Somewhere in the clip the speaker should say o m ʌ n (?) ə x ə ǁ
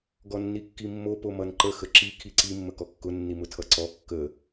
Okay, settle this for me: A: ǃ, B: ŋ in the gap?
A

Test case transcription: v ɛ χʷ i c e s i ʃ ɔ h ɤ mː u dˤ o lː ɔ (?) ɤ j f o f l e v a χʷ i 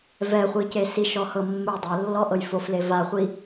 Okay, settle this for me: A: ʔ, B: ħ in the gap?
A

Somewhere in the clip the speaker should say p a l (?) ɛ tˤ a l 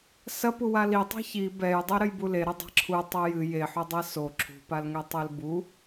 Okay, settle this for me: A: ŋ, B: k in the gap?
A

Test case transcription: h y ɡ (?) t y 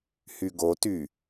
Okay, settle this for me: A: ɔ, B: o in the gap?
B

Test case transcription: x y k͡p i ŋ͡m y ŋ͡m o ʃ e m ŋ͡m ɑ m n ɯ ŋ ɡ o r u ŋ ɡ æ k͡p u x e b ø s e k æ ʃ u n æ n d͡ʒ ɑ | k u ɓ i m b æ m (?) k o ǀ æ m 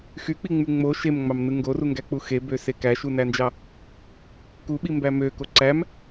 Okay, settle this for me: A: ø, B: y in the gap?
A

